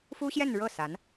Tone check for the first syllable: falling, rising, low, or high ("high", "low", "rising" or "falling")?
high